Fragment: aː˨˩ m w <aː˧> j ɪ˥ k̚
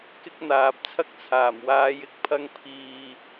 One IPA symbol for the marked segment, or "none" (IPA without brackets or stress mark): aː˨˧